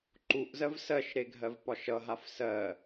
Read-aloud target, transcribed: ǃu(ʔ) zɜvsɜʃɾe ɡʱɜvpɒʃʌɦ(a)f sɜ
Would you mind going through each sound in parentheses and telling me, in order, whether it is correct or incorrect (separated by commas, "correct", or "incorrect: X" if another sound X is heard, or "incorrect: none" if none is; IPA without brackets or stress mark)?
correct, correct